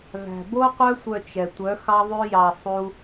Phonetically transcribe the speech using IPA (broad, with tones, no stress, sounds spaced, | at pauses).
v æ̤˨ b o˦ qʷ œ˦ sʷ œ˧ t͡ʃ ɛ˨ tʷ œ˨˦ x ɑ˦ ðˤ ʉ˦ j ɑ˧ sˤ u˦